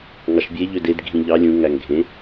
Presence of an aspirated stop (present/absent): absent